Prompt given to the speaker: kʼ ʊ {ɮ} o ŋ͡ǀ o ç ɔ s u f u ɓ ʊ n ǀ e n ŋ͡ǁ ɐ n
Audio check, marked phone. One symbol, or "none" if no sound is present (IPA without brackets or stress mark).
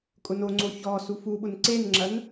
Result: n